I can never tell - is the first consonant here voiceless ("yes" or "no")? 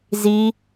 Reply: no